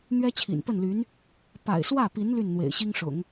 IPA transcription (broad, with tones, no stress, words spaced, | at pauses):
n̪ɥɛ˥t͡ɕʰḭ˨˩npə˥˩nly˧˥n | pa̰˨˩ɪ̯swä˥˩pi˧˥n ly˥˩nn̪wḛ˨˩ɪ̯ɕi˥ŋʂʊ̰˨˩˦ŋ